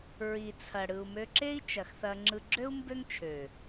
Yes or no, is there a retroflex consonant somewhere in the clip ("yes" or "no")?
yes